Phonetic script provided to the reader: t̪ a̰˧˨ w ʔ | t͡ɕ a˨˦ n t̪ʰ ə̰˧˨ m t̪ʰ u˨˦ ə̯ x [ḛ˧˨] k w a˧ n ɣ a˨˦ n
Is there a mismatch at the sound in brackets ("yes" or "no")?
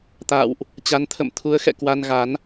yes